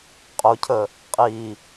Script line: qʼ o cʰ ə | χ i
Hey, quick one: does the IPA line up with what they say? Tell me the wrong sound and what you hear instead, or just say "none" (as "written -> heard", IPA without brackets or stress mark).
χ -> qʼ